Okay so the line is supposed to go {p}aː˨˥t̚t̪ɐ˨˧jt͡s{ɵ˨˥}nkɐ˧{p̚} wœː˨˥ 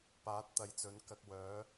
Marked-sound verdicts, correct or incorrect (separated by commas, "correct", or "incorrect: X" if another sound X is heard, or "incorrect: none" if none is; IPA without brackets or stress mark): correct, correct, incorrect: k̚